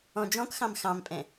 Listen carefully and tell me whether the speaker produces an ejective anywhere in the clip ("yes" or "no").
yes